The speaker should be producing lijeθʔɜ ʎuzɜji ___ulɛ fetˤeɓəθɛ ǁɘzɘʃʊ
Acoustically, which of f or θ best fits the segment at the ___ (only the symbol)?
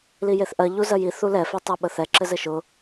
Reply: θ